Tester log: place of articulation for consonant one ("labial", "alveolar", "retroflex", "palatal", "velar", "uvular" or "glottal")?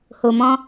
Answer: glottal